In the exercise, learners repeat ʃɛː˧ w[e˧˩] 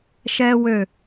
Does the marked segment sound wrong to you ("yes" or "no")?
yes